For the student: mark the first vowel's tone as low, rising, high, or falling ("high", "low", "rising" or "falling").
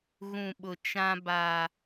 low